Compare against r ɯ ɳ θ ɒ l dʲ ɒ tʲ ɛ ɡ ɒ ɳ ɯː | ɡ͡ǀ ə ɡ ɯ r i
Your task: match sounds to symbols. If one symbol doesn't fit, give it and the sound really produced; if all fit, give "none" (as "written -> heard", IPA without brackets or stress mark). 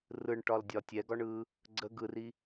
θ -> ʈ